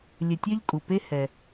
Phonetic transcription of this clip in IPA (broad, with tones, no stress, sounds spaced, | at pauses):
lʲ ɘ˨ tʲ ɛ˦ ʎ kʼ u˩ p e˦ h ɛ˩